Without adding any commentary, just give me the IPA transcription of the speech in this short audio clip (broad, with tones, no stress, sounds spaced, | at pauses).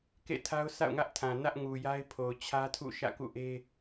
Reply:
k ḛ˦˨ tʰ a˦ ʊ̯ sʰ a̰˦˨ ʊ̯ ŋ ä˦ ʔ tʰ ã˨ n ä˦ ʔ ŋ u˨ j a˦ ɪ̯ pʰ o˨ ʊ̯ t͡ɕʰ ä˦ tʰ ṵ˦˨ ʃ ä̰˦˨ k ṵ˦˨ ʔ e˦